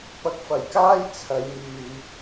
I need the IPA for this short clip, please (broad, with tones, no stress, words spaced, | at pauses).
pɐ˨˥k̚fɐ˨˩j kaː˥jt͡sʰɐ˨˧j myː˨